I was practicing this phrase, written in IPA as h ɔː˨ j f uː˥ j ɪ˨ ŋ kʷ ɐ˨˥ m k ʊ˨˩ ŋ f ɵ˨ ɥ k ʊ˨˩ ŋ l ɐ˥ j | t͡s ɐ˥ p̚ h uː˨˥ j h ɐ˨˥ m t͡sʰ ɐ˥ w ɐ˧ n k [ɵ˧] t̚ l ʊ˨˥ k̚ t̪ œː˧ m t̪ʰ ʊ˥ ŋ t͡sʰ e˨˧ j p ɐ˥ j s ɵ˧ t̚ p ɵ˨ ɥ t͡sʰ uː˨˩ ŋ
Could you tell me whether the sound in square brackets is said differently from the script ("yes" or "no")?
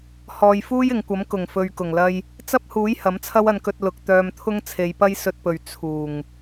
no